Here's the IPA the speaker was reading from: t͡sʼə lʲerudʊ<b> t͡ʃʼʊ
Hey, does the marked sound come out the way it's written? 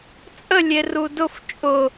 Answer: no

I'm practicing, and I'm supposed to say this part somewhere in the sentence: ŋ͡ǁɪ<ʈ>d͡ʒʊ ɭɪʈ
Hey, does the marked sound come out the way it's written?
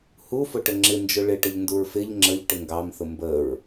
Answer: no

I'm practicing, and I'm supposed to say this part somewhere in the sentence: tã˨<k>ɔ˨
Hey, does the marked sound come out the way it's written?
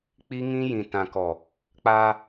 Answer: yes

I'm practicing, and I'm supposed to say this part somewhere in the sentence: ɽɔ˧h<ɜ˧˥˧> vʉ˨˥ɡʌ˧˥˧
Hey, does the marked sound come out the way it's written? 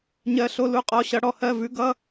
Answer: yes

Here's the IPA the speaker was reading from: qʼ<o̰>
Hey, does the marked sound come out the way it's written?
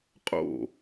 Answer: yes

